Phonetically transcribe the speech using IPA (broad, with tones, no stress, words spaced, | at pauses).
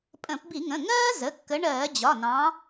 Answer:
pʼə̃˧˩˧pbi˧˩˧ŋə̃˩˧˩ ŋɜː˥zə˩˧˩kːə˨˦ ɳɜː˧˩˧d͡ʑɒ˩˧˩nɑ̃˨˦